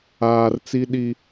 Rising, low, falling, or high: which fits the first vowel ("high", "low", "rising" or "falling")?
low